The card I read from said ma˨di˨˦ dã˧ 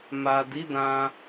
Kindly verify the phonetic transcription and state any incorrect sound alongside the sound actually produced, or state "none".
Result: none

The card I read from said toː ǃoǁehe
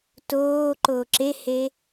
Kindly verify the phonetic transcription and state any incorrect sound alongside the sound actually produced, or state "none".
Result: none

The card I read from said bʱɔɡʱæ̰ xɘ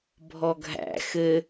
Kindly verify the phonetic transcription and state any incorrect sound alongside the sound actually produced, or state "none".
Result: none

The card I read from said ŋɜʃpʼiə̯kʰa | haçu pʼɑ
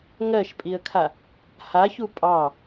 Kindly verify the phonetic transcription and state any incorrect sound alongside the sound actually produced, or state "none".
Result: none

